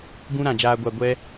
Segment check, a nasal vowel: present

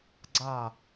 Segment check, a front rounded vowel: absent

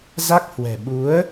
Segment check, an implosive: present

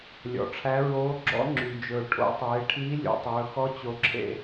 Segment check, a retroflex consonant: present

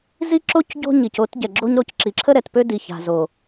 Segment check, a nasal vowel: absent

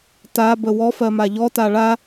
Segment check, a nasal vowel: absent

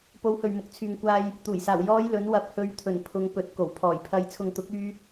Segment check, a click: absent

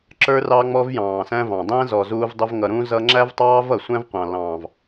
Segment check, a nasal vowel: present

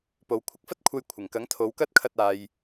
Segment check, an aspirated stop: present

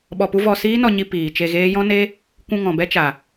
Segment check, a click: absent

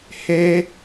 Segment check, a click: absent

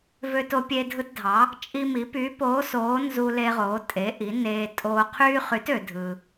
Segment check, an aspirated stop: present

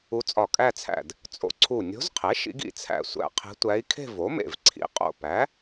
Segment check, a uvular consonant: present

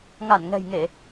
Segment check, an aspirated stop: absent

